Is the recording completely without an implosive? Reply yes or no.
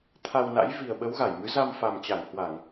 no